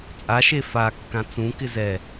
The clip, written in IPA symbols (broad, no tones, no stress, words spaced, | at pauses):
t͡sʼaʃe fakːã t͡sũkɪ zɛ